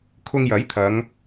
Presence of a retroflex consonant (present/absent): absent